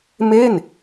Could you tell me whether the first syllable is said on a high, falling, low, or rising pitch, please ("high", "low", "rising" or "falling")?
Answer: falling